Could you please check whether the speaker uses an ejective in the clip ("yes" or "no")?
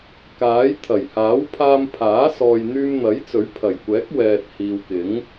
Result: no